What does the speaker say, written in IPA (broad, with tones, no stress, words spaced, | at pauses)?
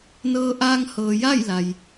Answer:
nɤː˧ʔaː˧ŋ hɤː˩ja˥˨j la˩j